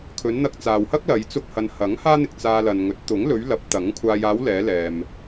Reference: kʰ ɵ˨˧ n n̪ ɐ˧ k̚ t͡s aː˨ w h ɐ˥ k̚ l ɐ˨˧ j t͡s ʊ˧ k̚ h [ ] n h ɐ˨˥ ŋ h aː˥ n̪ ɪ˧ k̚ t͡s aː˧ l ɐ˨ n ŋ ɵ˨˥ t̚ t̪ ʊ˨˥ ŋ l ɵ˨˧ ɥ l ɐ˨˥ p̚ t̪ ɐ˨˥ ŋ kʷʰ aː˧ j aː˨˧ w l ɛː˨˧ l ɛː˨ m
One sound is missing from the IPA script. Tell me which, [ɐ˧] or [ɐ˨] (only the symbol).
ɐ˨